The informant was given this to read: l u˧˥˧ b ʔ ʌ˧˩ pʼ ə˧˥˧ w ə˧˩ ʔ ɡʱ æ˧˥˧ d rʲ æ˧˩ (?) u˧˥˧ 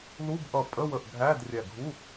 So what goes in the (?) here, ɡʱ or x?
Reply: ɡʱ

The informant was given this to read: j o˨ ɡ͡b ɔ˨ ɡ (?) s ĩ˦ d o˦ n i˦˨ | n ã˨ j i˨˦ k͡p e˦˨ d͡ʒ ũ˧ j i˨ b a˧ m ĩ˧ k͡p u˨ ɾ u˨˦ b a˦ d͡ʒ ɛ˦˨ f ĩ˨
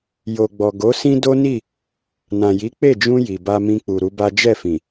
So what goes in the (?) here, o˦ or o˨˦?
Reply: o˨˦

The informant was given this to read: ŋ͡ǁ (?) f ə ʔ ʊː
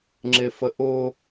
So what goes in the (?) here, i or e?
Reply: e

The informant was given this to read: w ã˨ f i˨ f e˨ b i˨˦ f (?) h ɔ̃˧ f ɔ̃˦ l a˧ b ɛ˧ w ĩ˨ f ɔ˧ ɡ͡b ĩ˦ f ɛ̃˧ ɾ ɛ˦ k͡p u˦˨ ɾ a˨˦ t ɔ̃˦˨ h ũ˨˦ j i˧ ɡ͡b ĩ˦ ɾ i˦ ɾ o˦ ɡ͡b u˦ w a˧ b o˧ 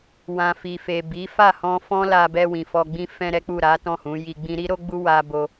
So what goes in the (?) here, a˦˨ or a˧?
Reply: a˦˨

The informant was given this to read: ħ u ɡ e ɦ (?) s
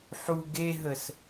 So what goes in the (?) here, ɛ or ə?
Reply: ə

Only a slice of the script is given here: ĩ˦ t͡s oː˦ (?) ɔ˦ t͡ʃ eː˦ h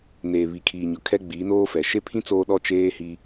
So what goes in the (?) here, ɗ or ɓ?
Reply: ɗ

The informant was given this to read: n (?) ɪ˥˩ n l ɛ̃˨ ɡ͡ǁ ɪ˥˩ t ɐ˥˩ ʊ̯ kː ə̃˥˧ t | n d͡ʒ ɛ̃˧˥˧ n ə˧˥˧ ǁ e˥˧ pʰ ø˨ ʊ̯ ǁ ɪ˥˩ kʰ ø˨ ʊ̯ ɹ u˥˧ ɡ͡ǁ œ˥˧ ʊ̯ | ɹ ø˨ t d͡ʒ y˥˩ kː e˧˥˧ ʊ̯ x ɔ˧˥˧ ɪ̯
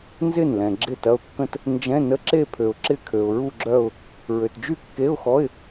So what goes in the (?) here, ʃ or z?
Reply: z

